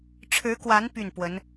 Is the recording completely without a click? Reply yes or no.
yes